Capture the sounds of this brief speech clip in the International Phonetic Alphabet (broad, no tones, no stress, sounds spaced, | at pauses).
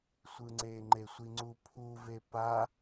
sʷ ɯ ŋ͡ǀ e ŋ͡ǃ e sʷ i ŋ͡ǀ u pʰ u v e p a